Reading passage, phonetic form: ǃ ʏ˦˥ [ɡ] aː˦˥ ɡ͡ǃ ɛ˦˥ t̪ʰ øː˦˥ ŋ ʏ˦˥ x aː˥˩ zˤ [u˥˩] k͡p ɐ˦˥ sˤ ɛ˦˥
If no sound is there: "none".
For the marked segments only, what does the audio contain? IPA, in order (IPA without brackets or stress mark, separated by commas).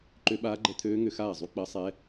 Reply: ɓ, u˦˥